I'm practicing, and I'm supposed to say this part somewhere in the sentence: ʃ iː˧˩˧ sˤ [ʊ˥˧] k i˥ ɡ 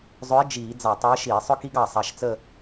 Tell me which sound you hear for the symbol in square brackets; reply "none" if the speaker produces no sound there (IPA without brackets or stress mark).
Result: ʊ˥